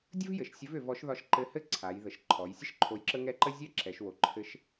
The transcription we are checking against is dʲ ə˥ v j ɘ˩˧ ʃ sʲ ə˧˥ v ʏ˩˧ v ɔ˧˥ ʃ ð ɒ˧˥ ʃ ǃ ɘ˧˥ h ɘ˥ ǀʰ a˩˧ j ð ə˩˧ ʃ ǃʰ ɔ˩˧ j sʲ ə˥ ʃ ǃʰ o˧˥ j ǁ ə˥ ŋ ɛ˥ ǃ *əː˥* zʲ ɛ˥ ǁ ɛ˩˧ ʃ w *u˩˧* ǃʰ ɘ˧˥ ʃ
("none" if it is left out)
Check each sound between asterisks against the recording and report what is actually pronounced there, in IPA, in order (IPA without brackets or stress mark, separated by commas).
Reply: ə˥, o˩˧